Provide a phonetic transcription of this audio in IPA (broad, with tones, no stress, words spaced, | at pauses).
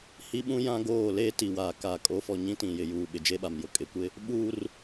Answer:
hi˦ɓũ˦ jã˦ɡoː˦˨ leː˦ti˨waː˨ kaː˨kʼo˨˦fɔ˨ ɲĩ˦tĩ˨jɪ˨ juː˨ ɓɪ˨d͡ʒe˦ɓa˨mjʊ˨ kʼɪ˨kʷɪ˦ | ɓuː˦r